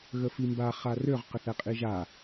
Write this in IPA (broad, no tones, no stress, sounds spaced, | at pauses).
ɣ ə f i m b a χ a r ø ʁ q ə θ ɛ qʼ i ʒ a